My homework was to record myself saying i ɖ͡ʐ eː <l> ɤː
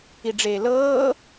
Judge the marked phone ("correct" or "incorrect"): correct